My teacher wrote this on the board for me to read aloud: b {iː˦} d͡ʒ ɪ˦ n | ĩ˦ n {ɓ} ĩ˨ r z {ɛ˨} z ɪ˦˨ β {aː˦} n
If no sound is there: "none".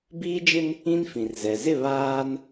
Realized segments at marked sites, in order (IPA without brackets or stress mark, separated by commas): iː˦, f, ɛ˨, aː˦